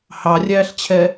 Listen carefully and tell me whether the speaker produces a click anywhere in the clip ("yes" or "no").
no